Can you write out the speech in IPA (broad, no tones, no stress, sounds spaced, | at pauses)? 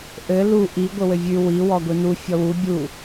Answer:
ʔ ɘ l u ʔ i ɡʷ ɘ w ɘ vʲ ʉ w i w ɔ ɡʷ i n u fʲ ɔ w u bʲ u